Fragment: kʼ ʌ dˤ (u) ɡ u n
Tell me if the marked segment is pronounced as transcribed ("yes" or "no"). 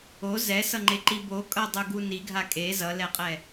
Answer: yes